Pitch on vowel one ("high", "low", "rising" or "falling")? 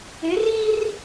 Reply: rising